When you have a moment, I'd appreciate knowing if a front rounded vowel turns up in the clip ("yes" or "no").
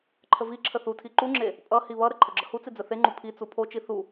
no